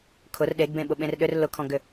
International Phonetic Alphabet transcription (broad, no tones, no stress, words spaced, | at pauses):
kʰʊr ɗeɡbẽɓʊ ɓẽrɗʏr lʊkʰɔ̃ɡʏ